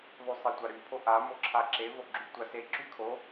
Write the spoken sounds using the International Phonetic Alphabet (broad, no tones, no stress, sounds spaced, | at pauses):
ðˤ y sˤ e tʷ a ɾ y pʰ o ʔ a m o ǁʰ a ǁ e v o ɡ͡ǁ y tʷ a s e ǁ y kʰ o